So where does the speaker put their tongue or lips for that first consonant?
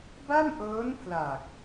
lips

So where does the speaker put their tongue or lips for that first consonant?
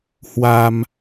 throat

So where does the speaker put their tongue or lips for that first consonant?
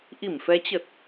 throat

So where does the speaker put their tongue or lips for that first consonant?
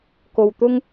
velum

